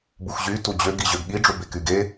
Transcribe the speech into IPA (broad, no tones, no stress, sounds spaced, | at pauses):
b u x ʑ y t u d͡ʑ ø ɡ i ʑ ø ɡ ɠ i ɖ͡ʐ u b e k y ɡ e